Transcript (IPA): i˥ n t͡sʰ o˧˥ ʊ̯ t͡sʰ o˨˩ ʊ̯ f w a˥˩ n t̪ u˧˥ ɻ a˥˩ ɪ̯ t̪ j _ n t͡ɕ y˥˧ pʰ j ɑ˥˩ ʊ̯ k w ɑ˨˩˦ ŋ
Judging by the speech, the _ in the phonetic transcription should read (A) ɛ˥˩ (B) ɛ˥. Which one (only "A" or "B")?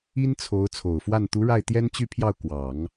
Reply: B